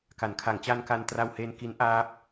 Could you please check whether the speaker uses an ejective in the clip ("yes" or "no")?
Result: no